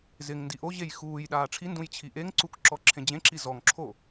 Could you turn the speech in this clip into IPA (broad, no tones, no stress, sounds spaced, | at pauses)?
z ɪ ŋ n d i ʔ o ʑ e j x uː j ɗ aː ʈ͡ʂʰ i n d ũ j t͡ɕʰ i ʔ e ŋ ǀ u k ǁ ɔ ǁʰ ẽ d͡ʑ ẽ ǁ i z ɔ ŋ ǁʰ o